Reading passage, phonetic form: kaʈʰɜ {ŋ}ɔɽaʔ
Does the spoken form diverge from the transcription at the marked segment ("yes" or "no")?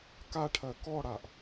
yes